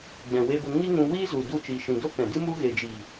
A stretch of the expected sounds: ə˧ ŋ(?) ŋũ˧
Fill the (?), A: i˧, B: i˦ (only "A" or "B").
B